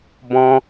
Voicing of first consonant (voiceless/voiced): voiced